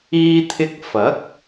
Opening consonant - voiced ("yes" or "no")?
no